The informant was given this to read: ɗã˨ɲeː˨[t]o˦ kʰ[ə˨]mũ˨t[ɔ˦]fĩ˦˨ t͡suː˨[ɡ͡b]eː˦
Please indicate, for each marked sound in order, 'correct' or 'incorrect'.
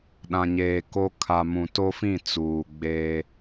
incorrect: k, incorrect: a˨, incorrect: o˦, correct

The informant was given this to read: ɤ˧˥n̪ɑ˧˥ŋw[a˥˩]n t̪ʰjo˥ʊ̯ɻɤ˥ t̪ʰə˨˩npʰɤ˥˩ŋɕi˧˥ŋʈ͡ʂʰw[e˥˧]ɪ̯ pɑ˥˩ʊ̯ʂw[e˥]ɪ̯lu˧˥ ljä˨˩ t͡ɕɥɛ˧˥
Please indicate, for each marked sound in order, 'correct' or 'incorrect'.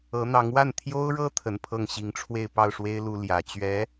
correct, correct, correct

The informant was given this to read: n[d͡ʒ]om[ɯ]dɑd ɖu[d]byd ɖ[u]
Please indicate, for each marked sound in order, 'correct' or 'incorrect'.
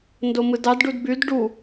incorrect: d, correct, correct, correct

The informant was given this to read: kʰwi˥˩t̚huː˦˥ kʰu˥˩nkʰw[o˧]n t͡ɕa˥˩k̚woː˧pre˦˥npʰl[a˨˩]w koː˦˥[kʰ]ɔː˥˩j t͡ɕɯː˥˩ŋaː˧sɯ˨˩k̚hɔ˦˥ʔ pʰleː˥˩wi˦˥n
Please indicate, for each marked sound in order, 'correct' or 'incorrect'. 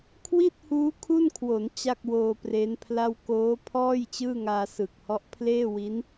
incorrect: o˩˦, incorrect: a˥˩, incorrect: pʰ

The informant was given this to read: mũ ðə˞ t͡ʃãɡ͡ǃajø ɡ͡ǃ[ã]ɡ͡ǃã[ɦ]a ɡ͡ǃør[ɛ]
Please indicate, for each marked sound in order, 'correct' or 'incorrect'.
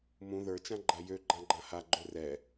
correct, incorrect: h, correct

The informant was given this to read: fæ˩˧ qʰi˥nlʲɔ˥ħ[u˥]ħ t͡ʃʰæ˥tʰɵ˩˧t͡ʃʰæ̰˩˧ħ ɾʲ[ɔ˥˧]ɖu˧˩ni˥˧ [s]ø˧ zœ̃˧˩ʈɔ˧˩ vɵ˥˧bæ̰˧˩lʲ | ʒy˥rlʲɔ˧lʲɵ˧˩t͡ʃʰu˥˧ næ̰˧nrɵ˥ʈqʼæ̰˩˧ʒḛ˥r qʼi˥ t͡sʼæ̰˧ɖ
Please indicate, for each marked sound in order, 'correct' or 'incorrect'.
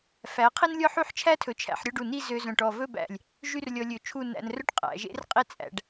incorrect: y˥, correct, incorrect: z

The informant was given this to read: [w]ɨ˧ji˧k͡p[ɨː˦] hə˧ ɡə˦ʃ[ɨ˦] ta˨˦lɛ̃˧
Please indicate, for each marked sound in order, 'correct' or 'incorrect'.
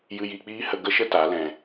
incorrect: j, incorrect: iː˦, incorrect: ə˦

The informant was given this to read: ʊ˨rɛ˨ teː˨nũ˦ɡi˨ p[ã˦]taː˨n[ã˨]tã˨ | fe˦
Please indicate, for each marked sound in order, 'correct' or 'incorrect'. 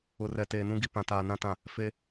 incorrect: ã˨, incorrect: ã˦

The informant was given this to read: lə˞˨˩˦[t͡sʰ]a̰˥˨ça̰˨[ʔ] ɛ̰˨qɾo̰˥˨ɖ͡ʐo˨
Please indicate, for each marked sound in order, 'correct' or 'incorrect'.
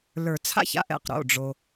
correct, correct

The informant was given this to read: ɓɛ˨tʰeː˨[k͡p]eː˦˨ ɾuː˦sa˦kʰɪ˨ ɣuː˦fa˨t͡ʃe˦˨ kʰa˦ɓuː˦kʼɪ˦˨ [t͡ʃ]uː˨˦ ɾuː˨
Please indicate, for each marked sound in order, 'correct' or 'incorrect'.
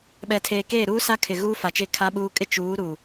incorrect: k, correct

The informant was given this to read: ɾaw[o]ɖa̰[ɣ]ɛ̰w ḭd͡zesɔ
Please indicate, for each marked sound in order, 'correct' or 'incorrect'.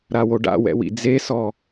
correct, incorrect: w

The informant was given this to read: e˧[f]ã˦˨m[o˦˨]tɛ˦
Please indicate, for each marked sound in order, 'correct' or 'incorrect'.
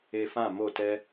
correct, correct

